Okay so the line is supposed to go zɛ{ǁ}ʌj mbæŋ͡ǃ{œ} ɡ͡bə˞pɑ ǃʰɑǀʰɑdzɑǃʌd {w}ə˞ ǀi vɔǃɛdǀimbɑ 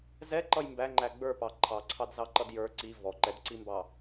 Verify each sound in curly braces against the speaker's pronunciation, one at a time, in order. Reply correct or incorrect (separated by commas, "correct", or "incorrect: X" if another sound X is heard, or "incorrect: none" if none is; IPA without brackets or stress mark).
incorrect: ǃ, incorrect: æ, incorrect: j